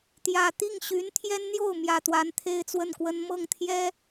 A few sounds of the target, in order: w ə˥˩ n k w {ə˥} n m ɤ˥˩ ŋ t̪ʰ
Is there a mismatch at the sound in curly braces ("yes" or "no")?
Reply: no